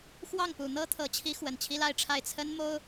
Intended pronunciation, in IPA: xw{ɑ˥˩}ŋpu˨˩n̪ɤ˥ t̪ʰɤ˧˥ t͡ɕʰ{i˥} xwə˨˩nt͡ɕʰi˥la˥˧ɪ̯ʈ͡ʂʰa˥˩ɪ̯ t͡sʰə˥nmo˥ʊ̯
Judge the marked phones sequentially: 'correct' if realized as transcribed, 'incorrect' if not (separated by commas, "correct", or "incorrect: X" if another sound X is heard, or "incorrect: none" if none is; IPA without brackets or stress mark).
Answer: correct, incorrect: i˧˥